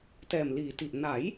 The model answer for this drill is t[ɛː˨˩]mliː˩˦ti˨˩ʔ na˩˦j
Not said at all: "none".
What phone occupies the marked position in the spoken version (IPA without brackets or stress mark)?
ɛː˨˩